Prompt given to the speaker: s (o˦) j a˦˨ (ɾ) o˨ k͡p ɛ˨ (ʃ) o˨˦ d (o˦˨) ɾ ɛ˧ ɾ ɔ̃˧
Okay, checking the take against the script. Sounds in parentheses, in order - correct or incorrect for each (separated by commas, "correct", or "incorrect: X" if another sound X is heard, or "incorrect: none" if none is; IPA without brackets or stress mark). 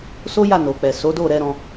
correct, incorrect: n, incorrect: s, correct